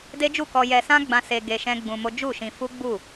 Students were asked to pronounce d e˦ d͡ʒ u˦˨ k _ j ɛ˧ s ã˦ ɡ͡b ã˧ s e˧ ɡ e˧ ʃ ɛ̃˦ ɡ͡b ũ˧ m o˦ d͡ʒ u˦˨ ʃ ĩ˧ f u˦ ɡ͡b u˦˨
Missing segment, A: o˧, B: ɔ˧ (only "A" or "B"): B